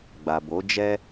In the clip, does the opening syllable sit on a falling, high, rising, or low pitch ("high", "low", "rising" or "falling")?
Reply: low